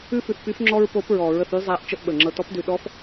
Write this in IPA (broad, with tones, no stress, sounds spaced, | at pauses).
ʉ˥ f ʉ˧ θ p y˧˥ f ŋ͡ǁ ɔ˥ ɹ p o˧˥ p ɹ ɔ˨˩˦ ɹ ə˧ θ y˥ zˤ æ˧˥ ʔ t͡ʃ ə˥ ʔ ɓ ə˨˩ ŋ͡ǁ ɤ˧ t ɔ˧˥ p d ʉ˧ ɗ ɔ˧˥ f